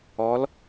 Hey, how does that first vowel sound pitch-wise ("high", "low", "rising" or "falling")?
rising